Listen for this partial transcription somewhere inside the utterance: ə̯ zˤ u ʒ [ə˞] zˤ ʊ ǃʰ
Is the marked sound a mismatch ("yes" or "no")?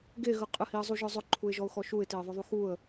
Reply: no